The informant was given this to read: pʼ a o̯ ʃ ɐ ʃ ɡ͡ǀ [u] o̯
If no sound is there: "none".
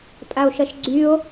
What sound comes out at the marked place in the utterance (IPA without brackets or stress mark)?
y